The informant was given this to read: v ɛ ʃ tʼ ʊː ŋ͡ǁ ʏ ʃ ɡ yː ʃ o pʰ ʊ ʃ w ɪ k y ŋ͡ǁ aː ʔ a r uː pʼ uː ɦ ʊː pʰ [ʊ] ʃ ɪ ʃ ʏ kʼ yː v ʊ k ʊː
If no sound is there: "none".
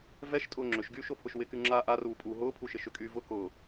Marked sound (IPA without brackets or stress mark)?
u